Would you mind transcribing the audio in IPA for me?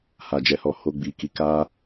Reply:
h a˨ d͡ʒ ɛ˨ h ɔ˨ h o˧ ɡ͡b i˨ k i˨˦ k a˦

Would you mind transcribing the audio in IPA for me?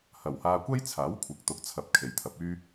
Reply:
h ɐ˨˩ w h aː˧ kʷ ɐ˥ j t͡sʰ aː˨˥ w kʷʰ ɪ˨˥ k̚ t̪ ʊ˨˥ k̚ t͡sʰ ɐ˨ p̚ kʰ e˨ j t̪ʰ ɐ˨˥ p̚ yː˥

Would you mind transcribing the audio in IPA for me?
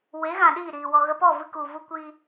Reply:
w e˨˦ ɣ ã˨ ɗ iː˦˨ ɾ iː˨ w ɔ˨ ɣ ə˧ p ɔ˦˨ v ɨ˦ k u˨ v u˦ kʷ i˦

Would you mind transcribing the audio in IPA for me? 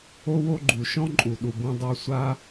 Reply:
o˦ w o˦ ɡ͡ǃ u˨ ʃ ɔ̃˦ ǃʼ u˨ ɗ u˨ b ũ˧ dˤ u˧ sʷ a˦

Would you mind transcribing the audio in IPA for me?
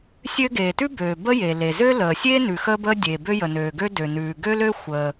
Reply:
sʲ ø˥ ɡ eː˩ t ʉ˥ b øː˩ b ə˥ j e˩ l e˩ z ø˥ l əː˩ sʲ eː˥ n ʉ˩ x əː˥ b əː˥ dʲ eː˩ b ø˥ j ə˩ n øː˩ ɡ ø˥ d ø˩ n ʉː˩ ɡ ø˥ l ø˥ xʷ əː˩

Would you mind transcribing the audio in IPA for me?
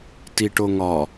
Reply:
t i ʈ o ŋ ɒ

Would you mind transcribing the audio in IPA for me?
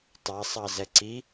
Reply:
tˤ ɑ sˤ ɑ z ɛ ǀ i

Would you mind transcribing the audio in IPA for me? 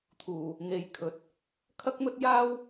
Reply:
t̪ʰ uː˨˩ | ŋ e˨˧ j kʰ ɵ˨˥ t̚ | kʰ ɐ˥ k̚ m ɵ˥ t̚ j aː˥ w

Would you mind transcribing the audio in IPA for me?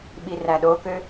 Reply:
ɓ i r æ ɗ o k ø

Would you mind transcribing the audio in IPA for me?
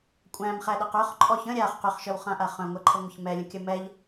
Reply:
kʷʼ æ̃ m χ æ ɗ a q œ χ ǃʼ ɔ ç ə̃ ɾʲ a χ q ʏ χ ʃ œ w χ ã ʔ a χ œ̃ ŋʷ ɛ ǃʰ ə ŋʷ ə ç m ɛ lʲ ə̃ kʲ ə m ɛ ʎ

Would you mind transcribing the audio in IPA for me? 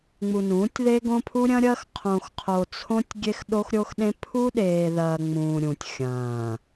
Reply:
ŋ͡m u˨ n ũː˨˦ tʲ ð e˦ ɡ õ˦ pʰ u˦ ɾʲ ɐ̃˦ ɾʲ ɐː˦ x qʰ õ˨ x qʰ o˨ t͡sʰ õ˦ tʲ ɡʲ e˦ x ɗ o˦ x ɾʲ o˦ x ɗ ẽ˦ pʰ u˦ ɗ eː˨ ð ɐː˨ ŋ͡m ũː˨ ɾʲ ũ˨ tʲ xʲ ɐ̃ː˨

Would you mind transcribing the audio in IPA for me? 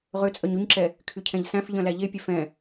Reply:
ʁ ø t͡sʼ œ ɲ y ɲ ǁ ɛ | kʰ y cʰ ɛ̃ ʎ s æ̃ f ʎ œ̃ l æ ʎ e pʲ œ f ɛ̃

